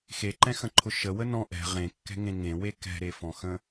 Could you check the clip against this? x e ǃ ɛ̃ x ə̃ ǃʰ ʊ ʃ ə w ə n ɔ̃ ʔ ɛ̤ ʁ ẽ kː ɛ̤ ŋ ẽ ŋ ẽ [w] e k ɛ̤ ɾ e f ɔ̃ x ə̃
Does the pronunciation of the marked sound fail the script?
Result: no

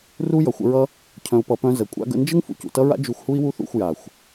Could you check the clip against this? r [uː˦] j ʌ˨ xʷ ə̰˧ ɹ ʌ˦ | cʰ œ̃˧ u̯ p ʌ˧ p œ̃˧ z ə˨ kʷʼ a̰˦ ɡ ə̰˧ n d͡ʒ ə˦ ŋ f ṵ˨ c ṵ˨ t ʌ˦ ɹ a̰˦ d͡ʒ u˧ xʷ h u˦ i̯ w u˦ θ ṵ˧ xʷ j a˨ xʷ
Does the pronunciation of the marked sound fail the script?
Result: yes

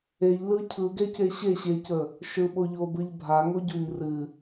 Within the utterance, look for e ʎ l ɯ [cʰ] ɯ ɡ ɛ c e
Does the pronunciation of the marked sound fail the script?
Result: no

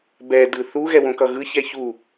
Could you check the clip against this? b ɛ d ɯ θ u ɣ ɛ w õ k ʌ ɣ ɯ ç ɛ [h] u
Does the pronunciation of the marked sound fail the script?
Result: yes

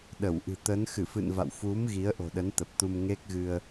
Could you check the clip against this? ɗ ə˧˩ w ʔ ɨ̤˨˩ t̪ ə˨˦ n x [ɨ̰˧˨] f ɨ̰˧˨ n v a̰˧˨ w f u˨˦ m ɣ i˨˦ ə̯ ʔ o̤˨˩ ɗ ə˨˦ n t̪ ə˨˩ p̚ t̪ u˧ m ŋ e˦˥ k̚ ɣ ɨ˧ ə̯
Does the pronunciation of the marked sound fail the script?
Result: yes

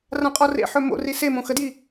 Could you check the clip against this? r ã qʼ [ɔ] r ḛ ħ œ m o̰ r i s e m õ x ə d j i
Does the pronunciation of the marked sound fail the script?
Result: no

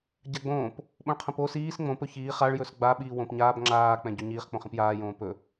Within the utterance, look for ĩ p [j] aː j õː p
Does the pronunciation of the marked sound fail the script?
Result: no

